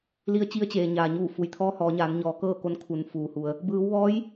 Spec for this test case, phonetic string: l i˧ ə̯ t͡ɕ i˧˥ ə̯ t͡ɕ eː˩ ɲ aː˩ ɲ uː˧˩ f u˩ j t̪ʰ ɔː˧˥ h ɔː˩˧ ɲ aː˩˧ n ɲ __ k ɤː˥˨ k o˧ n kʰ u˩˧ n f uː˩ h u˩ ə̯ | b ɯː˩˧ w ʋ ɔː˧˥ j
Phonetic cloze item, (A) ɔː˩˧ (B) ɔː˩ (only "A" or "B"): A